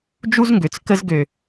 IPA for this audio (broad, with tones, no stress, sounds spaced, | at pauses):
d͡ʒ u˦ z ŋ ɡ ø˨ t͡s k ə˦ z ɡ ø˨